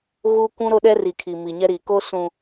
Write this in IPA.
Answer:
ɣ u˦ kʷ ũ˦ ɾ o˦ ɗ ɛ˦ r i˨ kʰ i˨ m i˨ ɲ ɛ˦ ɾ iː˨ k o˦ s ũ˨

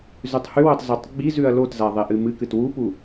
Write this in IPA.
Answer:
z ʉ tˤ h ʉ w ɵ tˤ z o tˤ ɡ͡b i z ʉ ɐ̯ l o t z a ðˤ e ʔ ɨ m ɨ k ɨ t w u p u

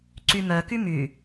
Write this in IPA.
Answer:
ǀ y m œ k y m y

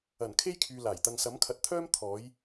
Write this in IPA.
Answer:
ɐ˨˩ n kʰ e˥ j kʰ yː˨ l aː˨˩ j t̪ ɐ˧ ŋ s ɐ˨˥ m kʰ ɐ˨ t̚ t̪ʰ œː˥ m t̪ʰ ɔː˨˥ j

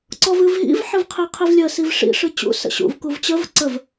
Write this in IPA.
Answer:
ǀ ɔ v ɨ v ɦ ḭ v ħ ɨ v qʰ i qʰ i v lʲ ə s i v ʂ ḭ ʂ ɨ t͡ɕ ṵ s ə̰ ɕ ṵ v k u v t͡ɕ ə v ǀ ə v

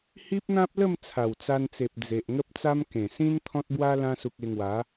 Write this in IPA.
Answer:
h i˦ p̚ n̪ ã˦ p̚ l ə˥˧ m t͡sʰ a˨˩ w t͡s a˧ n t͡s e˨ p̚ d͡z e˨ ʔ ŋ ə˦ p̚ t͡s a˦ m k ẽ˨˩ s ĩ˦ n t̪ʰ ɔ̃˦ t̚ b w a˦ l ã˧ s u˨ k̚ e˧ ŋ w a˨˦

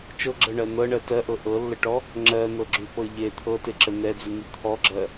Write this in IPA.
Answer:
t͡ʃ ɤ ɡ͡ǁ ɤ ɳ ɜ n̪ ɤ ɳ ɜ t ɜ ʔ ɤ ʔ ɤ lː ə ʈ ɔ | ŋ͡ǁ ɜ n̪ ɤ ɡ͡ǁ y p ɤ ʎ e t̪ʰ ɤ t e ǁ ə n̪ ɛ d͡z y n̪ y t̪ʰ ɔ ɡ͡ǁ ɜ

